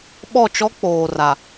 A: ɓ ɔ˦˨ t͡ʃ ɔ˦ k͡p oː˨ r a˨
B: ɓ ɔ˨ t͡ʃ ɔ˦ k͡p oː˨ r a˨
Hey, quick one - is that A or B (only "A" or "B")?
A